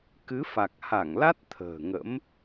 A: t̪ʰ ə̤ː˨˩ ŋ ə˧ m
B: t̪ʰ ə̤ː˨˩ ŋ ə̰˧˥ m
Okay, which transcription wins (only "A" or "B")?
B